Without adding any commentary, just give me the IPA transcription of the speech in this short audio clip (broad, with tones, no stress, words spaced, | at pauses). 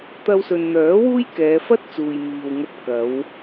t̪ɐ˧wsɵ˨nn̪œː˨˥ wuː˥jkɛː˨˧fɐ˥t̚t͡suː˨j miː˨wŋɐ˧t̚ kɐ˨˧w